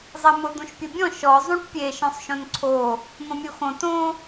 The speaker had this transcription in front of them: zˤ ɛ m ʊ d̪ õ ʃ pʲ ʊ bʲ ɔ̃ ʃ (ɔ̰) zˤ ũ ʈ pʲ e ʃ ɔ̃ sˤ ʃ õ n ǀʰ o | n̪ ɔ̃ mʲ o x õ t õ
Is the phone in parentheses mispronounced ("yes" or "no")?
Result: yes